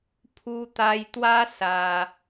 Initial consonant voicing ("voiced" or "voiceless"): voiceless